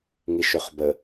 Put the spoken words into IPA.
ŋiʃøχbə

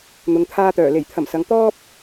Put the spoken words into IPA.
n̪ʊ˨ŋt̪ʰaː˧t̪œː˨˩ le˨˩jt̪ʰɐ˨˩msɐ˨ŋ t̪ɔː˥p̚

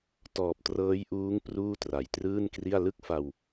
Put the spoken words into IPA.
tɔː˨˩p̚trɤː˦˥jʔuː˦˥ŋ pruː˥˩tra˨˩jtrɯː˥˩nkri˥˩a̯ lɯ˥˩k̚fa˧w

